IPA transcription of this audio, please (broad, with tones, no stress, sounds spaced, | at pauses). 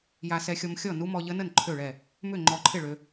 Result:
j a˧ s ɛ˧ xʲ ɔ˧ m xʲ ɔ˥˨ n u˦˥ m ɔ˧ ʎ ə˦˥ n ə˥˨ n ǃʰ ø˥˨ ɭ ɛ˥˨ | m ʏ˥˨ ŋ͡ǃ ɔ˧ ǃʰ ɪ˥˨ ɭ ø˧